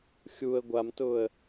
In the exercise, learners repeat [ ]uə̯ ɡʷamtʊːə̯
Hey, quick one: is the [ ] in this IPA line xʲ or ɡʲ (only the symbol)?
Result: xʲ